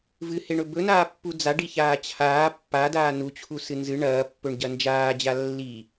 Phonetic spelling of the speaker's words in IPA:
v ɨ h e ɳ ɵ b ɵ n aː pː u d͡z a ɖ i ç aː t͡ɕʰ aː pː a d aː n u t͡ɕʰ u s ɨ n z ɨ ɳ ɐː pː ɵ ɳ ɟ ɐ n d͡ʒ aː d͡ʑ a lː i

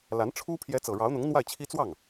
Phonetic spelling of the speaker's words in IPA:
l a˧˥ n ʈ͡ʂʰ u˥ pʰ j ɛ˧˥ t͡s ɤ˨˩ ɻ ɑ˧˥ ʊ̯ n̪ ʊ˧˥ ŋ n̪ w a˥˩ ɪ̯ t͡ɕʰ i˥ t͡s w ɑ˥˩ ŋ

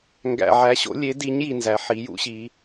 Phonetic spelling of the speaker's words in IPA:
ŋ ɡ æ̰˨ ʕ æ˨˦ ɕ o̰˨˦ lʲ e˨˦ d i˨˦ ɲ j i˨ n z æ˨˦ ħ i˨˦ j ṵ˨˦ ɕ i˨˦

